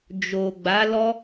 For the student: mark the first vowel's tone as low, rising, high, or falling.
low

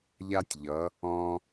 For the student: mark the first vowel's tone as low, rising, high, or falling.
high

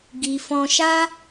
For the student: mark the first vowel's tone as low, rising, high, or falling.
low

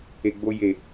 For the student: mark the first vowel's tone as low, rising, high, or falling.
low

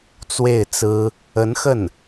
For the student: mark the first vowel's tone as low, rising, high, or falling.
falling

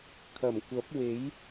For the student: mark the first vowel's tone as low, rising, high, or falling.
low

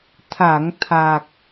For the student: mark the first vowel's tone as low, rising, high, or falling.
low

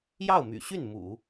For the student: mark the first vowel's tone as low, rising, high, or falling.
falling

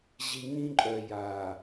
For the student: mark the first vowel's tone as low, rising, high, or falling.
low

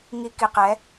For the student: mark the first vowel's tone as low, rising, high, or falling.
high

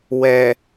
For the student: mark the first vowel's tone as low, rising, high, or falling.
low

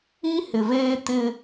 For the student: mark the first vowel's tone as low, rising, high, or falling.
high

